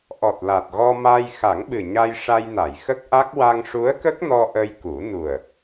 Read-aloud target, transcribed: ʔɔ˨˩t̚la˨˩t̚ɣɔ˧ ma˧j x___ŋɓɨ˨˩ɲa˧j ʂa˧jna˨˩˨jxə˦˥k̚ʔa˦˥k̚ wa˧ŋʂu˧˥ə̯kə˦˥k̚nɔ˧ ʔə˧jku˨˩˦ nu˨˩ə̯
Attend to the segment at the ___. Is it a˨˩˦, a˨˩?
a˨˩˦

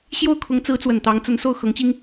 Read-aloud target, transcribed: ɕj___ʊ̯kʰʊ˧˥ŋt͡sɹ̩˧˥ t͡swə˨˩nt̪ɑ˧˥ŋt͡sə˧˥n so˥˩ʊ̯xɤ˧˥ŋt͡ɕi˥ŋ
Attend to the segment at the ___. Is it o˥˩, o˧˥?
o˥˩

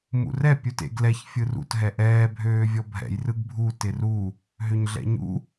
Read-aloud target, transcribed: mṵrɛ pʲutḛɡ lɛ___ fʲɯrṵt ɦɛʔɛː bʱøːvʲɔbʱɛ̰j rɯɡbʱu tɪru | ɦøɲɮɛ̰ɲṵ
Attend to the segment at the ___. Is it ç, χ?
ç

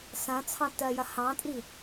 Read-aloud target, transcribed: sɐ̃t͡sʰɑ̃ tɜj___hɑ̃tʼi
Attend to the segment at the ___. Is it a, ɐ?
ɐ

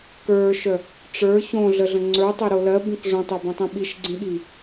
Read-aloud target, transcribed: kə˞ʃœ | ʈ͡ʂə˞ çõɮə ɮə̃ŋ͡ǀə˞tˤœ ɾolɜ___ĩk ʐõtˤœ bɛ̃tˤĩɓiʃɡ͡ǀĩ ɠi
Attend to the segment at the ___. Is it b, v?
b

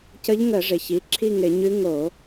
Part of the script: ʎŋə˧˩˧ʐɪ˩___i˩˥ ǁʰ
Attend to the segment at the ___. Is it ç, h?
ç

